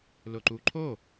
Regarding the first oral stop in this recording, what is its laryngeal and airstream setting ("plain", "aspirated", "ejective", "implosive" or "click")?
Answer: click